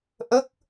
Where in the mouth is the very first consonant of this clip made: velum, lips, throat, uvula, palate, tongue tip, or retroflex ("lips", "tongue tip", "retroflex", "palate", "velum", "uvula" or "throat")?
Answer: throat